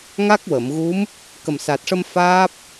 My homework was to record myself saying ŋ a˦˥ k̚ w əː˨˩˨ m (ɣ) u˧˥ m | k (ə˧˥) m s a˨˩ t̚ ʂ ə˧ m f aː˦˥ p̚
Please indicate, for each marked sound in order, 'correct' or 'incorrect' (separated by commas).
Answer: correct, incorrect